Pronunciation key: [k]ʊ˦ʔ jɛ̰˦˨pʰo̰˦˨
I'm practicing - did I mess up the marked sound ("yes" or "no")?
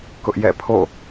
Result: no